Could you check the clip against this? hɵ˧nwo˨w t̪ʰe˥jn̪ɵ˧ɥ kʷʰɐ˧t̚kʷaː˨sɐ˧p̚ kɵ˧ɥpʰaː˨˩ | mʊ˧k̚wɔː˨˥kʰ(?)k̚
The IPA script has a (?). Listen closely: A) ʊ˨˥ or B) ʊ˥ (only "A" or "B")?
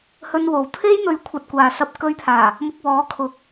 A